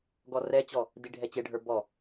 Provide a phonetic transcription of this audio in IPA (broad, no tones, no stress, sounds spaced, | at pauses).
ɡ ɔ r ɛ t͡ɕ ɔ | d i ɖʱ ɛ t͡ɕ e ɖʱ ə˞ b ɔ